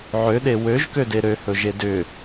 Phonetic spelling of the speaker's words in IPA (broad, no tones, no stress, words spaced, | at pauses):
ʕøɗe wøʒkøde ɾøhɵʒe dʏ